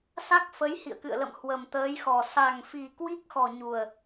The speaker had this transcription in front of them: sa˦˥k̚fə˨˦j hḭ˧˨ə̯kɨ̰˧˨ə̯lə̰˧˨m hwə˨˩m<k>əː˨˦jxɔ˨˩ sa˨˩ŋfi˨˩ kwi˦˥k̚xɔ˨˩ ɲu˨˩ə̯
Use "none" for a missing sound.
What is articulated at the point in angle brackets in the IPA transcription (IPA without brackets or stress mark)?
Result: t̪